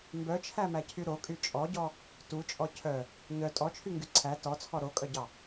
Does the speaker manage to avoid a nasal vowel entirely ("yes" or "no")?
yes